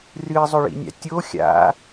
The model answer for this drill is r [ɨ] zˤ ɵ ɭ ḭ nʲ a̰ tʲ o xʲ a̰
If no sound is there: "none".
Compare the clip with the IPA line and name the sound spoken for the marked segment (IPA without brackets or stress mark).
ɨ